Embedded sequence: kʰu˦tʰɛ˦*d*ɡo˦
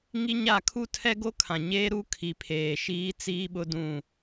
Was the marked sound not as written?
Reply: yes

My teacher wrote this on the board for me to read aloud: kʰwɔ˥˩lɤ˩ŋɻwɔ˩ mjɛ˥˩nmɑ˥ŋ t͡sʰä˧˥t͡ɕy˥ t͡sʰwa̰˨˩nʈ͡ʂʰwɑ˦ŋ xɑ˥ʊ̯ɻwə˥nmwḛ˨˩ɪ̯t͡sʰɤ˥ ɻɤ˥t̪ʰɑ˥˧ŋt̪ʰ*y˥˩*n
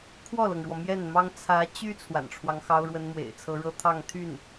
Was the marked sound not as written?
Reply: no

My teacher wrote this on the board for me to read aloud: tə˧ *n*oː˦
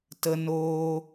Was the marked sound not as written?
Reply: no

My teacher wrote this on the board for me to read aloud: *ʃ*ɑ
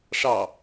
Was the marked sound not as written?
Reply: yes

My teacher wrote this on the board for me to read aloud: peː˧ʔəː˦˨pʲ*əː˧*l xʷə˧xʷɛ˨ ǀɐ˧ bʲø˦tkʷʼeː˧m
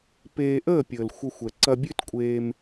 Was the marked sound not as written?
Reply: yes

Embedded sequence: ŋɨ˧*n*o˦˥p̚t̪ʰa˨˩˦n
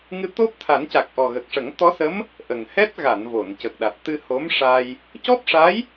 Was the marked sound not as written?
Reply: yes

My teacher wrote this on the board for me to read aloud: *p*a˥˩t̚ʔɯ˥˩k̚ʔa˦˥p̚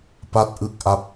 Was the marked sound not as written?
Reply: no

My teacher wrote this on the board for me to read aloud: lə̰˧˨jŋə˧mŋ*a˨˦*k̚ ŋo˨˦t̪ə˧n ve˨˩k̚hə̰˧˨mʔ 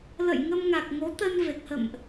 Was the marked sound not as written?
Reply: yes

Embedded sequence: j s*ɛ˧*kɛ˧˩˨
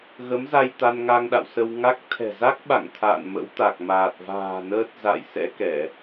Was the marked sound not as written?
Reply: yes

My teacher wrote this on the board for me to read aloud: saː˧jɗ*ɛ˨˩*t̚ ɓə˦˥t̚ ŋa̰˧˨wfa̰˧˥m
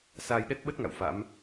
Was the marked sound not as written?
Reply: yes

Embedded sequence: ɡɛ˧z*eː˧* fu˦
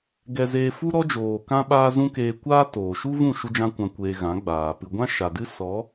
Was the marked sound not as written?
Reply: no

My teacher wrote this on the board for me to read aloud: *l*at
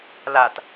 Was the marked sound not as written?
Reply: no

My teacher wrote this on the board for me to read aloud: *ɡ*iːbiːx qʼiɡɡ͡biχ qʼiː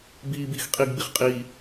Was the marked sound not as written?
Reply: yes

